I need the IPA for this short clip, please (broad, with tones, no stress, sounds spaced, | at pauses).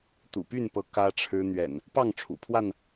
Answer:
t̪ ṵ˨˩ p y˥˨ n p ɤ˨˦ k ä˦ ʈ͡ʂʰ ɻ̩˦ n̪ ɥ ɛ̰˨˩ n | p ɑ˥˨ ŋ ʈ͡ʂʰ ṵ˨˩ pʰ w a˥˨ n